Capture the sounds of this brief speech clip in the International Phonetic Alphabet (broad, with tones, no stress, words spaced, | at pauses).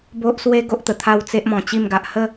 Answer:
bo˦ʔswe˦ ɡo˦ʔt̪ə˨˩t̪ʰa˥˧w t͡se˦ʔmɔ̃˨˩t͡ɕi˥˧mɡa˨ʔ hə˥˧